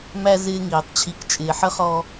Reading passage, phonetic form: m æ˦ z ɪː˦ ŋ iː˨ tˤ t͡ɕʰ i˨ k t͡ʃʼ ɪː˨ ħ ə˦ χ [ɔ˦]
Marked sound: correct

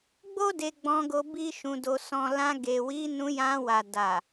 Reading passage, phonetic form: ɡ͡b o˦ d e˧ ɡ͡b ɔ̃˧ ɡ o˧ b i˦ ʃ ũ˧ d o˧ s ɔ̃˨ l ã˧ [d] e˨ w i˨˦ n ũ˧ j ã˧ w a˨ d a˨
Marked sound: incorrect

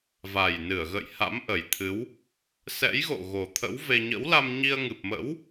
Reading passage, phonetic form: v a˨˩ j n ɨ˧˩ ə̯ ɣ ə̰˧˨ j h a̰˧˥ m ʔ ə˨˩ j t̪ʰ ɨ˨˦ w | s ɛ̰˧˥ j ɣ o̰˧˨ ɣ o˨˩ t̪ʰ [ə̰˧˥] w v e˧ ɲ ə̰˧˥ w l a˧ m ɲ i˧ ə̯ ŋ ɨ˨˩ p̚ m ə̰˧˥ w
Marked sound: correct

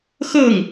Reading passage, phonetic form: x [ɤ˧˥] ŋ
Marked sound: incorrect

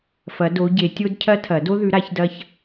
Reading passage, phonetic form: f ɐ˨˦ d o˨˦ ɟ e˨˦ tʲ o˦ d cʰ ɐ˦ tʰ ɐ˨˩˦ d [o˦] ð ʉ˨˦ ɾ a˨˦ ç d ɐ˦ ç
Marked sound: correct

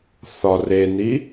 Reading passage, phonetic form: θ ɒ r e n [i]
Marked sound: correct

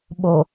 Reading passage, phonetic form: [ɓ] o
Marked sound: correct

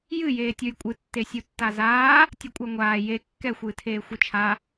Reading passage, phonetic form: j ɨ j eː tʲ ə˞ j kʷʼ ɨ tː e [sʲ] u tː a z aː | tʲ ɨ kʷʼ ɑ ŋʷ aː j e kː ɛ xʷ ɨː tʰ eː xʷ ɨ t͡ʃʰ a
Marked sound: correct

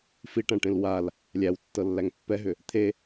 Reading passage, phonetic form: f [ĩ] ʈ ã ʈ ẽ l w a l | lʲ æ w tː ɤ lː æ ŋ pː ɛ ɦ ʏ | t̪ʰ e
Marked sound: incorrect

